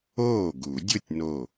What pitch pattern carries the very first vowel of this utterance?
falling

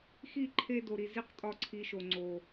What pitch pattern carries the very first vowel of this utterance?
falling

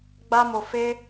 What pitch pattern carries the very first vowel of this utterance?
high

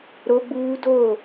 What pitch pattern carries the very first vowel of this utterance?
high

